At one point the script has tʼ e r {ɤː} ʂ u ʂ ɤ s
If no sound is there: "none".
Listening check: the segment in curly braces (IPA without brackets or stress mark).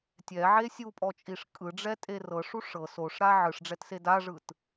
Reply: ɤ